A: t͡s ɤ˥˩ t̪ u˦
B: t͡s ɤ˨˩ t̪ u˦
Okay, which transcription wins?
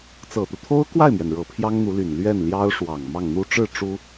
B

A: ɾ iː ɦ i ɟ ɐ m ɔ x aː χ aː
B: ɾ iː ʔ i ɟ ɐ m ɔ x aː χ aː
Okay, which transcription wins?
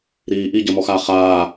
B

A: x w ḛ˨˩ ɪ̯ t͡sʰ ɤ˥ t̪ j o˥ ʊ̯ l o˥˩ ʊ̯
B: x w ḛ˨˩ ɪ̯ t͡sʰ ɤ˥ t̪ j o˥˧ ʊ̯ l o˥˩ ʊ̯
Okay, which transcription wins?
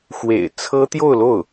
B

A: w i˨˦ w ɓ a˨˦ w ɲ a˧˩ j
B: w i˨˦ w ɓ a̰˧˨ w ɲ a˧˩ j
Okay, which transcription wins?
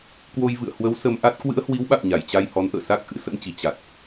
B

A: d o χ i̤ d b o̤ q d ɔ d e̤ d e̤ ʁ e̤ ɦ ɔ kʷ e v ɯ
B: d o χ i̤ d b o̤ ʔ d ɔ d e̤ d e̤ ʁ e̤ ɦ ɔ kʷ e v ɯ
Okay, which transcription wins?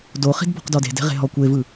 A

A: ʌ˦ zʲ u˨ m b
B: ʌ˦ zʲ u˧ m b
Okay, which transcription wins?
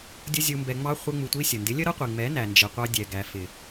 B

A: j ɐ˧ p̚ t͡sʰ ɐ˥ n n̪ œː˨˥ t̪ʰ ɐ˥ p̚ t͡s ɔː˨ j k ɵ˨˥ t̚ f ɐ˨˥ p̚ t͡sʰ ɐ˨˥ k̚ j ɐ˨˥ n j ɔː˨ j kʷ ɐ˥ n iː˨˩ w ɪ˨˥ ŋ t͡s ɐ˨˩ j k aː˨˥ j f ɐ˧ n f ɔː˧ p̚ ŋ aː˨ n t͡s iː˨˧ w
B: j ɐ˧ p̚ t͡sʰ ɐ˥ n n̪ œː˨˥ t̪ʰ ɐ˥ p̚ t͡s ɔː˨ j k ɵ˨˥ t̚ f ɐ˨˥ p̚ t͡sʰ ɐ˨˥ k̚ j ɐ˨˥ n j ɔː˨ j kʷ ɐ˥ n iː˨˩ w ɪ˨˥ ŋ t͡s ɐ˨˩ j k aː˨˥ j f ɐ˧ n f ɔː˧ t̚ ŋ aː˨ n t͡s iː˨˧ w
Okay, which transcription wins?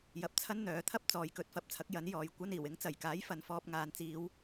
A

